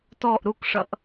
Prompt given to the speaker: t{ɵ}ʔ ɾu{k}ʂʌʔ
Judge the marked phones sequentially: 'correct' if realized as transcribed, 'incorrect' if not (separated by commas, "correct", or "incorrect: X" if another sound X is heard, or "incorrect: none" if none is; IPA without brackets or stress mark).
incorrect: ɔ, correct